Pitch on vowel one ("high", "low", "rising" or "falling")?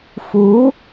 rising